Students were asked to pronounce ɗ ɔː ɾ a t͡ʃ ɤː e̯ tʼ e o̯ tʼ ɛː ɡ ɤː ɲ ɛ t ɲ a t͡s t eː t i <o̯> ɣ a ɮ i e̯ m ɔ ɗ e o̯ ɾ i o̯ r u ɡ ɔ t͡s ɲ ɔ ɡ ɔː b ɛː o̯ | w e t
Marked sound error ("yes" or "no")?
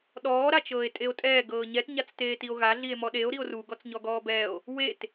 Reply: no